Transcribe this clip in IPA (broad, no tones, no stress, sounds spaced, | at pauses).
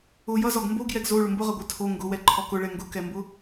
ʊ j ʌ z ɔ ɡ m b o ɡ j ɛ ɡ z o ɭ ʊ m b ʊ ʁ ʌ ɡʷ ə˞ tʰ o ŋ ɡ ʊ w ɛ ǃʰ ɔ k ʊ ɭ ɛ ŋ ɡ ʊ k ɛ m b ʊ